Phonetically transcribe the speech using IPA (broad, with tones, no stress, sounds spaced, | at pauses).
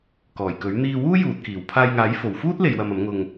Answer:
k ɔː˨˩ j k ɵ˨˥ ɥ n̪ iː˧ w uː˥ j uː˨ t̚ k iː˨˩ w pʰ aː˧ j ŋ aː˨˥ j f o˨˩ w f uː˥ t̚ l e˨ j w ɐ˨ m ɐ˨˥ m ŋ ʊ˧ ŋ